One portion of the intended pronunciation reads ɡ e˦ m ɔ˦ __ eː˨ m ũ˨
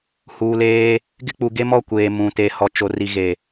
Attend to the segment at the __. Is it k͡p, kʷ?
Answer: kʷ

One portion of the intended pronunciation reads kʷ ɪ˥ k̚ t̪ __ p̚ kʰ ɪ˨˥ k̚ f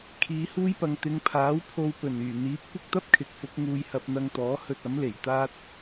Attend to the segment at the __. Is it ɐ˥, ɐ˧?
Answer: ɐ˥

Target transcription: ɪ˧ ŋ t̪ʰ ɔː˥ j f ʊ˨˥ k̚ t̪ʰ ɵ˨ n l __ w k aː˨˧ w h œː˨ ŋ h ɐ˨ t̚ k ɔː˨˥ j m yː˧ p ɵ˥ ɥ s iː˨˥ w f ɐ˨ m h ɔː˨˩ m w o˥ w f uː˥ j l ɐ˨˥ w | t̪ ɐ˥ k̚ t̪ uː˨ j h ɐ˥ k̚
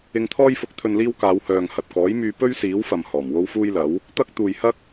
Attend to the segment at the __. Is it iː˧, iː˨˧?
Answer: iː˧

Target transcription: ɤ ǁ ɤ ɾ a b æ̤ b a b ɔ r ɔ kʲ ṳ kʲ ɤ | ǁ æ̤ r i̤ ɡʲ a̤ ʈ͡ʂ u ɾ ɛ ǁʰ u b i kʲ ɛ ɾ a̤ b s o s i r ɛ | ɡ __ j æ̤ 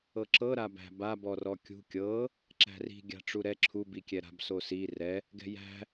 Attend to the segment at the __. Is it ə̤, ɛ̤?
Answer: ɛ̤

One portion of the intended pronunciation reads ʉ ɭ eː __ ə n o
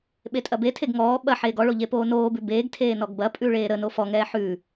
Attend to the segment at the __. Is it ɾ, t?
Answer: ɾ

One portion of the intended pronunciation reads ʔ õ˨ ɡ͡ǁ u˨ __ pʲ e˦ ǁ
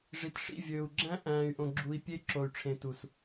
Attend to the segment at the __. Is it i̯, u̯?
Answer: i̯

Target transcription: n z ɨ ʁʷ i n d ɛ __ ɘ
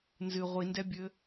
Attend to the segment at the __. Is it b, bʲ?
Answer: bʲ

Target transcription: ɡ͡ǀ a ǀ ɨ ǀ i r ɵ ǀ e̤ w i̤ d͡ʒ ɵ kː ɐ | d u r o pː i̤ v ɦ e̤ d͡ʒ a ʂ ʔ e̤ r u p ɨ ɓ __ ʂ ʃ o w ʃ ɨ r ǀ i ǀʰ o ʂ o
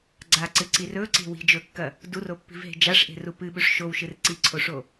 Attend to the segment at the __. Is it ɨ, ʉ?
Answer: ʉ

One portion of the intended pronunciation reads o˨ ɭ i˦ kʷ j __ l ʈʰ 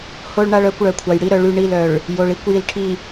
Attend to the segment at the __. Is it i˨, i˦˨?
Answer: i˨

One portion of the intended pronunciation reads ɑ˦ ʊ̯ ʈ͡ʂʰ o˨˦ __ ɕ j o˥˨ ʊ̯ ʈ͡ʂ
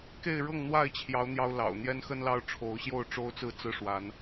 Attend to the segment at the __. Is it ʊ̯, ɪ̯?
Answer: ʊ̯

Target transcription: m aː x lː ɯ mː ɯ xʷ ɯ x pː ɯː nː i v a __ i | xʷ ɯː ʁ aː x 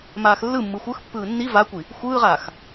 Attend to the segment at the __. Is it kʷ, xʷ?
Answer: kʷ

